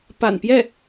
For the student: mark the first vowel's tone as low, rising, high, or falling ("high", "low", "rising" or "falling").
low